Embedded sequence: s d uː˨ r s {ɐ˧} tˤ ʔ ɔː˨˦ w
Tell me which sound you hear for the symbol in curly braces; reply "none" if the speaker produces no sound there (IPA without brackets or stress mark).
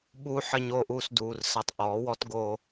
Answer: ɐ˧